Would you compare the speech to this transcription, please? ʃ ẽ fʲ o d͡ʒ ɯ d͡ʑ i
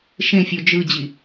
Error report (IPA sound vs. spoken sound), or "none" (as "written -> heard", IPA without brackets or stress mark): none